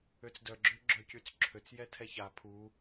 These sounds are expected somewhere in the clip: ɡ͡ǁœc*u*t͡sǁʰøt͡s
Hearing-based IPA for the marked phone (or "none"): y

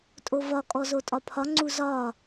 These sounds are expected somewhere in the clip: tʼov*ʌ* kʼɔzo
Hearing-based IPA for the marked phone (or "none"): ɒ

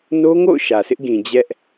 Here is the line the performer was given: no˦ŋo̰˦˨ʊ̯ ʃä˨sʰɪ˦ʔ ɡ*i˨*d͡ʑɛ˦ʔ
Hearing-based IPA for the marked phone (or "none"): ĩ˨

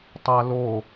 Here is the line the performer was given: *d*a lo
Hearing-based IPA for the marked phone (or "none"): tˤ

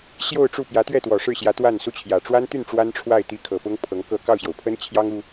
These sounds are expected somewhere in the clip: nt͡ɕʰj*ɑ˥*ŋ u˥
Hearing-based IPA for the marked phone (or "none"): ɑ˥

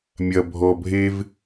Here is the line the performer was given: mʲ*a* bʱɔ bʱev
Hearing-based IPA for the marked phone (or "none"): ɐ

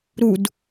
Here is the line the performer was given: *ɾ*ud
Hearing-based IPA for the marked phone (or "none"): ɾ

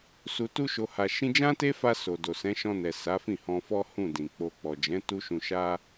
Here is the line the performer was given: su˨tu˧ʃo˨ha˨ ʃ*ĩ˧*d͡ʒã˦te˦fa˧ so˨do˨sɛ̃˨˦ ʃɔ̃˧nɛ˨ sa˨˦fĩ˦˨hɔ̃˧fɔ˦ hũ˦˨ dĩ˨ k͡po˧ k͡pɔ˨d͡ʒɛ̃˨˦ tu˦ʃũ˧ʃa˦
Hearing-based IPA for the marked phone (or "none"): ĩ˧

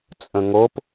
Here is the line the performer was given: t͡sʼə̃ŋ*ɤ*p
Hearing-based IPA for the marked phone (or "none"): o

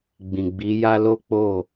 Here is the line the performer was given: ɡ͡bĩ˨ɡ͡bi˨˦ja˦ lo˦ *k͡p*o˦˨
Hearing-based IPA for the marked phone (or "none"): k͡p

